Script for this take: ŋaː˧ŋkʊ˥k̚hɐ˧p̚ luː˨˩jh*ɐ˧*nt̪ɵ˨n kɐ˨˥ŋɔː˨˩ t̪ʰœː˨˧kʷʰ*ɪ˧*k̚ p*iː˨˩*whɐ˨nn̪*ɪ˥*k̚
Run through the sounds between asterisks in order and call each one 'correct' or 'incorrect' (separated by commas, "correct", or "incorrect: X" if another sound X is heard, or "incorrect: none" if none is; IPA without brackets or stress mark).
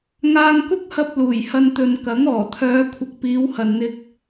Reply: correct, incorrect: ɪ˨˥, incorrect: iː˨˧, incorrect: ɪ˧